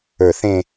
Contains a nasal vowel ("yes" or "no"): yes